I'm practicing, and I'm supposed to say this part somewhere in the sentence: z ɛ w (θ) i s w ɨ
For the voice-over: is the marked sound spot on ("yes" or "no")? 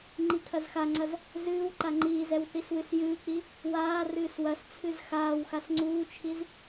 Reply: yes